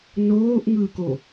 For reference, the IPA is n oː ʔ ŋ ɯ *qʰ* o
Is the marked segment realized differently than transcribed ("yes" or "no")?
yes